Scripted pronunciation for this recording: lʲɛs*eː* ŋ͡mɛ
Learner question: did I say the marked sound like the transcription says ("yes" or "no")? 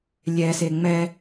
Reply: no